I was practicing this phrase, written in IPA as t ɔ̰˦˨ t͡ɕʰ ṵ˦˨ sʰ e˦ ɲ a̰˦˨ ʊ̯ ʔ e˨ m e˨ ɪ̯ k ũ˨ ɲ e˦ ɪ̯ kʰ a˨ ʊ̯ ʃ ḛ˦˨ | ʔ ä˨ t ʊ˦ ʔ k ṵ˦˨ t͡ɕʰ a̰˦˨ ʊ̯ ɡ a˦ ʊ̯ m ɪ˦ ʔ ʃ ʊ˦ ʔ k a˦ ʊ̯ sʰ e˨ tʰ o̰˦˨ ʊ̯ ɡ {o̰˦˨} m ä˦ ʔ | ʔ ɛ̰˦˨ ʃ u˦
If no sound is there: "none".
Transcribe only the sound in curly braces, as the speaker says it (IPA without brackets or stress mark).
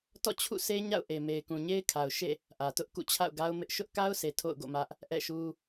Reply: o̰˦˨